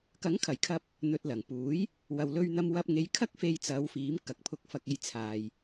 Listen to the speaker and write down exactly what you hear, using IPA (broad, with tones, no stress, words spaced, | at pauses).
kɐ˨˥ŋkʰɐ˨˩jkʰɐ˧p̚ | n̪ɵ˨t̚ lɐ˨˩ŋpuː˨˥j | wɐ˨wlɵ˧ɥn̪ɐ˧mwɐ˧p̚ ŋe˨˧jkʰɐ˥k̚ fe˧jt͡sɐ˨˧wfiː˨˥m kɐ˨k̚pʰʊ˧k̚fɐ˧k̚ e˥jt͡sʰaː˧j